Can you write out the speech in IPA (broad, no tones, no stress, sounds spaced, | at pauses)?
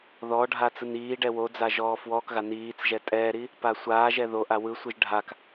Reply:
ð ɔ ɖʱ a t͡s ɯ n iː ɖ ɛ w o d͡z a ʒ ɔː f w ɔː k ɣ a n iː t͡s ʒ ɛ tʼ ɛː ɾ i | p a sʷ aː ʒ ɛ ð o ʔ a w ɯ sʷ ɯ ʒ ɖʱ a k